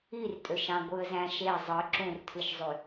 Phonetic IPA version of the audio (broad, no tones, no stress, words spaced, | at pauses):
irtʼøʃɑ̃ ɡʷɯə̯zæ̃ʃe zˤɯ ǁũrtʰɯʃzˤy